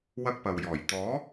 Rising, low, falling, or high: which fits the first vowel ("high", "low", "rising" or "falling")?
high